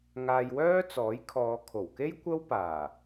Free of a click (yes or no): yes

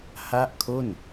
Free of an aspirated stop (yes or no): no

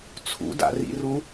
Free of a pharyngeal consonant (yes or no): yes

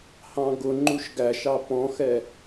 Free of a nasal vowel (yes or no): no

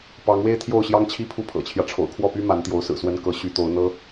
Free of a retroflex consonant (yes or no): no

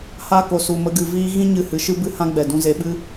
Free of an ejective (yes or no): yes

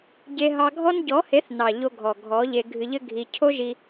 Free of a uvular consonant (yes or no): yes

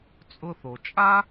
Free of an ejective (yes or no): no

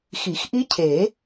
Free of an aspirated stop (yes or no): no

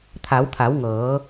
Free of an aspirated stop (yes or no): no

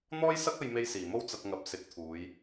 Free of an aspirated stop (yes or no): no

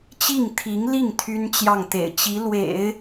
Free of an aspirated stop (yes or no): no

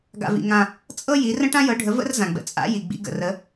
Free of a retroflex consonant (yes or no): no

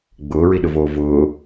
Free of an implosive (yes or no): no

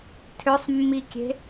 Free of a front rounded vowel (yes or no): no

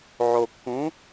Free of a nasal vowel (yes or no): no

